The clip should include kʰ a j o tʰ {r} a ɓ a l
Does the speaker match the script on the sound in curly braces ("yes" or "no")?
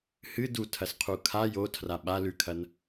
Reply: yes